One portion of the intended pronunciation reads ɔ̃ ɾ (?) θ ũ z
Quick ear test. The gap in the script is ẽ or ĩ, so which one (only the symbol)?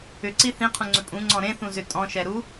ẽ